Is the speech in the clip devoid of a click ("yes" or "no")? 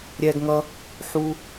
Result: yes